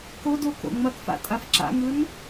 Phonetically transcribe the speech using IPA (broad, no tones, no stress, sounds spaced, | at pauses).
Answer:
k o d o k o̰ ŋ͡m ɐ k f a̰ tʼ a f ǁ a̰ ŋ ɯ n